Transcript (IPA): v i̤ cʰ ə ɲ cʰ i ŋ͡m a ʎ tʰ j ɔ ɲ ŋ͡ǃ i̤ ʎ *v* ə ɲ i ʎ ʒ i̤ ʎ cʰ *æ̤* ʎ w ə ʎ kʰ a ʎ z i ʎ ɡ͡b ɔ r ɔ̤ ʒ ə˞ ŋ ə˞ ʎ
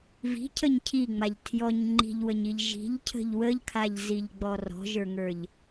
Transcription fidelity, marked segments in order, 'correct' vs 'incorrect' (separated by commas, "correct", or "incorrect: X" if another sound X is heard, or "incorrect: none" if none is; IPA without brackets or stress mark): incorrect: w, incorrect: ə̤